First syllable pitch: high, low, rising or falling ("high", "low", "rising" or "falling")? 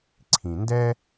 low